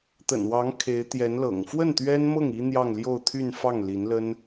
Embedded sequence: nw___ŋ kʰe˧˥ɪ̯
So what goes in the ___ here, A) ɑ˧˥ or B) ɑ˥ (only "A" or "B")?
A